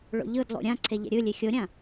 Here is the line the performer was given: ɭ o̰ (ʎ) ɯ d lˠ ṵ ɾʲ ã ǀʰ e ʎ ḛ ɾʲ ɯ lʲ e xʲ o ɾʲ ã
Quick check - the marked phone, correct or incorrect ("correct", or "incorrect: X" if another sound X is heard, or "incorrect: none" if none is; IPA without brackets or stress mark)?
correct